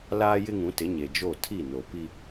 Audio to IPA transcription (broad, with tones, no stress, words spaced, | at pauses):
laː˦jɪ˦ŋũ˨˦tɪ˨˦ ɲe˨d͡ʒo˦˨ tʰi˦˨no˨pi˦